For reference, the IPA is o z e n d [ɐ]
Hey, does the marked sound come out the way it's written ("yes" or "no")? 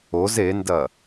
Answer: yes